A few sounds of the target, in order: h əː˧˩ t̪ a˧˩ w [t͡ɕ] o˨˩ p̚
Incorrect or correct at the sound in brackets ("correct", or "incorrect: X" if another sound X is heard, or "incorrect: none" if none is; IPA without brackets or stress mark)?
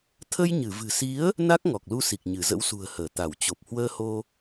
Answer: correct